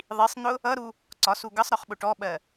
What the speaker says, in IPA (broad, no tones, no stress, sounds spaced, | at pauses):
ðˤ i sˤ n̪ ʊ | ʌ ɾ u | ǀ ɒ s u ɡ ʌ sˤ ɾ ɒ χ ɓ ʊ ʈ ɔ ɓ ɜ